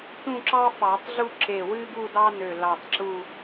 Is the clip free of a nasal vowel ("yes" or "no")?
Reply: no